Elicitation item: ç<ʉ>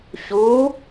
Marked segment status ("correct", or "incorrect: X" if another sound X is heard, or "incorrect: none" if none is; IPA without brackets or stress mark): incorrect: u